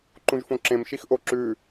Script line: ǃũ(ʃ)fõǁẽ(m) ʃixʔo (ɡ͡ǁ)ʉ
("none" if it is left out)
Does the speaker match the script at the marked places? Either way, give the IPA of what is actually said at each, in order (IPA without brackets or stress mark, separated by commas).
ʒ, m, ǁ